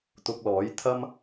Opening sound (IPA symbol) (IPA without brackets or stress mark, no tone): t̪